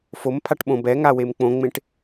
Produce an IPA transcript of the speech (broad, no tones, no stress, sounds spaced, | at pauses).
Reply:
f o m pʰ a ʈ ɓ õ b ɛ ŋ a w e m k͡p õ ŋ͡m ẽ ʈ